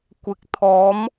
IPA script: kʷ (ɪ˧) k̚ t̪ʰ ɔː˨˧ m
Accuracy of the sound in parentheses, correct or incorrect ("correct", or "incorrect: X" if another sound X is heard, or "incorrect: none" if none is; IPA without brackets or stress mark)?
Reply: incorrect: ɪ˨˥